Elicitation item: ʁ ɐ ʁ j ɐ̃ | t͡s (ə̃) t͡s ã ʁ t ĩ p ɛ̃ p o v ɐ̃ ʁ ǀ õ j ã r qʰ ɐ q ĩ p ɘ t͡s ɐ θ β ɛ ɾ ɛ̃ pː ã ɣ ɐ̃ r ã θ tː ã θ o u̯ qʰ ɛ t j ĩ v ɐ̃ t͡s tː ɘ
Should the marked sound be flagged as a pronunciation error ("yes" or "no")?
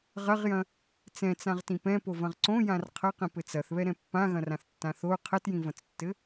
yes